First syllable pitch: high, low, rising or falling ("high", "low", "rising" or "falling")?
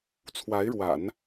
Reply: rising